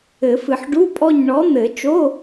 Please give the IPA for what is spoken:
ɘ˨˩˦fɨ˨ħ ɖu˧˥˧pʼɔ˦˨ɲɳɔ˨˥ n̪ɘ˨˩˦t͡ʃo˧˥˧

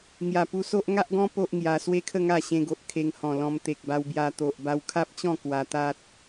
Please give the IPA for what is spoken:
ŋja˨˩pu˧so˦ʔ ŋa˦ʔɡɔ̃˦ po˦ʔŋja˧ swe˦kʰə˥˧ ŋa˥˧ɕẽ˧ɡo˨ʔ kʰe˧ŋhɔ̃˨˩lɔ̃˧m t̪e˨k̚ba˧wbja˧ t̪o˨ʔba˧wkʰa˦p̚t͡ɕɔ̃˥˧ kwa˧t̪a˦t̚

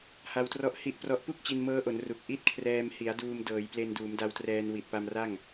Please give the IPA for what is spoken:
ha˧wtrɔ˦˥ʔ hi˦˥ʔprɔ˦˥ʔ pu˥˩k̚t͡ɕi˧nmɤː˦˥ʔo˩˦n ru˨˩k̚ʔi˥˩t̚kʰrɛː˧m hi˩˦a̯ duː˧mdɤː˩˦j ple˧nduː˩˦mda˧wtrɛː˧n wi˨˩t̚pa˧m ra˥˩ŋ

